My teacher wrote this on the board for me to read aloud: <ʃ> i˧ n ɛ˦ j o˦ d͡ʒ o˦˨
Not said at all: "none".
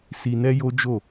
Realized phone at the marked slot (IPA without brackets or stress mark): s